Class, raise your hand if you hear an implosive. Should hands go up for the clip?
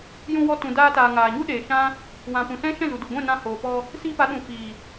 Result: yes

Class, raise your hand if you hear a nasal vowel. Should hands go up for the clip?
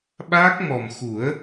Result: no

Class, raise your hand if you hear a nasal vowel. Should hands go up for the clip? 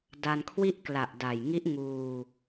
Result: no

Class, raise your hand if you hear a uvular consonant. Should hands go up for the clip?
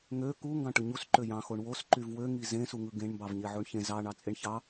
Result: no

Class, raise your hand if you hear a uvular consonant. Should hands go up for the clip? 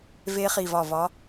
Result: yes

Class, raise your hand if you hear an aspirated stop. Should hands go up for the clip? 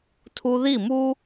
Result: yes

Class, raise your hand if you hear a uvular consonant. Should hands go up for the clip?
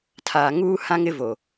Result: no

